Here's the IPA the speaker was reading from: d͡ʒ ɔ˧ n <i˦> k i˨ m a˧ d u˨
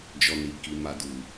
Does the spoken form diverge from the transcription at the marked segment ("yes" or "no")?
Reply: yes